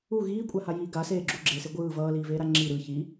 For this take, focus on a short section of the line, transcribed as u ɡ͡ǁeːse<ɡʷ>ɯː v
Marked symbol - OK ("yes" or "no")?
yes